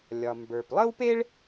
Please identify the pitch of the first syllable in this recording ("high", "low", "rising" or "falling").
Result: low